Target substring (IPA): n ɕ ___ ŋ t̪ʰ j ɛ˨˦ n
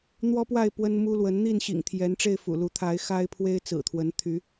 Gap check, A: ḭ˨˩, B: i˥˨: A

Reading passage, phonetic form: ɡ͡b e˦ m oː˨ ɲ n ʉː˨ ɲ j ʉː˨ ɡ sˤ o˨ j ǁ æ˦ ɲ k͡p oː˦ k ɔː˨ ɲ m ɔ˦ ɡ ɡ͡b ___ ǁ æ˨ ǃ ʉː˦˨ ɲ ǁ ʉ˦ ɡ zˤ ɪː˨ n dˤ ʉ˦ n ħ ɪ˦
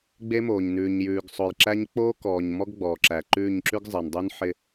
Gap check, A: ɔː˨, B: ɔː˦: A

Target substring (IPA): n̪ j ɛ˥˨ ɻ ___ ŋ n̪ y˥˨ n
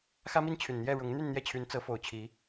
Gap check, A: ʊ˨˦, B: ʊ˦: A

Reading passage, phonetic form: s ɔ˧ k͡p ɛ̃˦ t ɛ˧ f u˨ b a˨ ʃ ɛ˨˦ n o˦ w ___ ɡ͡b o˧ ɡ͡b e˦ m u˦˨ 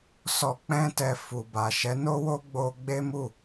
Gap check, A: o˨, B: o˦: B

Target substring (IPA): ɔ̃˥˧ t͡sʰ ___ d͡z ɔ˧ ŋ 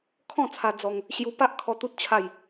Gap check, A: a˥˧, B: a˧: B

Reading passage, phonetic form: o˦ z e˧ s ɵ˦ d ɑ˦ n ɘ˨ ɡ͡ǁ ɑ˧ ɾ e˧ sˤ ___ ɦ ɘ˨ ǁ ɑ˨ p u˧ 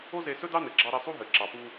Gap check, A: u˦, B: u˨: A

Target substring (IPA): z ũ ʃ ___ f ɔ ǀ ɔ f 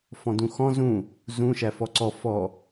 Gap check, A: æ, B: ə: A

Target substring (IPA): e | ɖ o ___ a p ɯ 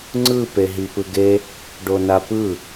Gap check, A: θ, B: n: B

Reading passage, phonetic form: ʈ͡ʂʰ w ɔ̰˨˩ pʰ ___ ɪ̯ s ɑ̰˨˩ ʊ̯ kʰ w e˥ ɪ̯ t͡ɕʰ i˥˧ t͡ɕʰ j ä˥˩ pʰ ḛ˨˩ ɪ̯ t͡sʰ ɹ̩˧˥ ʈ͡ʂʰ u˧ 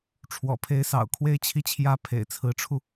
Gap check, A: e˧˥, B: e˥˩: A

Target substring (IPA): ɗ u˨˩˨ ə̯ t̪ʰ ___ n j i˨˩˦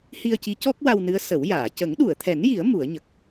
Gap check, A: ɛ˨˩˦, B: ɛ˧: A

